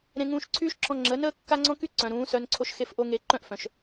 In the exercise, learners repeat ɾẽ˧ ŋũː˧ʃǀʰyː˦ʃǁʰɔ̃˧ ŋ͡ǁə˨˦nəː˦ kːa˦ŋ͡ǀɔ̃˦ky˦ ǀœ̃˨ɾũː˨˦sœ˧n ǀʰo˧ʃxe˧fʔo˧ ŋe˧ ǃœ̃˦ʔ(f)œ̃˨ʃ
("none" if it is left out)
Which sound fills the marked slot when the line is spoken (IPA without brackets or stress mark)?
f